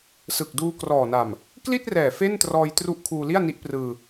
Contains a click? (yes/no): no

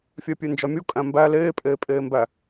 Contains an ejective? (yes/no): yes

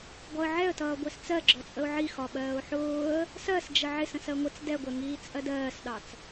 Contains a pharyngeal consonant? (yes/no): yes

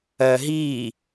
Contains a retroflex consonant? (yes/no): no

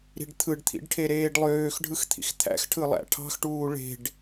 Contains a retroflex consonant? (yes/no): yes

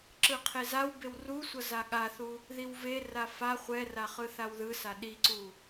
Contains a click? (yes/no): yes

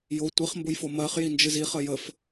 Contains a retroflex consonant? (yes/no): no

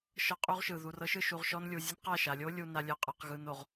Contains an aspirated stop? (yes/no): no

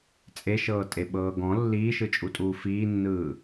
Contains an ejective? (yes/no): yes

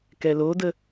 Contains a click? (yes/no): no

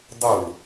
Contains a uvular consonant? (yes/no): no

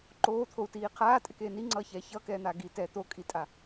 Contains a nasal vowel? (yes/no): no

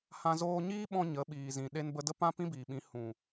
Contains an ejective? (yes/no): no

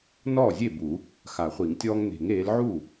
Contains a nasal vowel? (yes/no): no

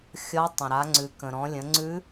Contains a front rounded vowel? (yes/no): no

